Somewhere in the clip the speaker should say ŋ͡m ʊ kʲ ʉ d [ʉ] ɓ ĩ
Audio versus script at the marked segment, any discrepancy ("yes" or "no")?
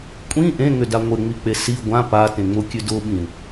yes